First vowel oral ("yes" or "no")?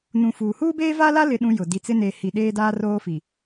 no